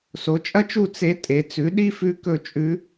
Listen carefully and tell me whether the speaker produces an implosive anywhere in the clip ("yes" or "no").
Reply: yes